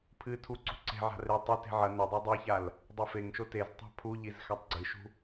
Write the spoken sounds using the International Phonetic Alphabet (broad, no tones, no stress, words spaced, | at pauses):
pʰɨtʰuǀṳ ǀe̤ ʕa̤re tˤi te̤ʕɐ nɵdˤo dˤiçal | dˤefeŋʃo teztˤa̤ pʰuʎiz xatˤɡ͡ǀɨʃṳ